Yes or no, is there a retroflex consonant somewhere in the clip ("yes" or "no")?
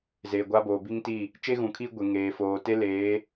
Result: no